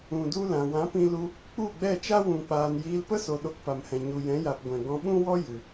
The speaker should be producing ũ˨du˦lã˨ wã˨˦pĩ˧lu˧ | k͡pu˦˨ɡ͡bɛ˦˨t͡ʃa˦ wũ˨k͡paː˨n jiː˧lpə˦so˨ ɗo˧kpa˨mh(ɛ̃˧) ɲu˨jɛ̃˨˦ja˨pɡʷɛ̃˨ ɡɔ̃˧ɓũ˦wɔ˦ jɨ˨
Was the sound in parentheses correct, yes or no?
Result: no